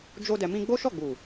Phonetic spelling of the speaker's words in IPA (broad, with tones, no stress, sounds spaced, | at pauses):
d͡ʒ o˦ d ɛ˧ m ĩ˦ ɡ͡b o˦ ʃ ɔ˦˨ ɡ͡b u˨